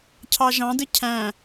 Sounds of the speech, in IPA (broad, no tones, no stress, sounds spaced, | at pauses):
cʰ ɑ ʒ ɑ̃ d ɯ cʰ æ̃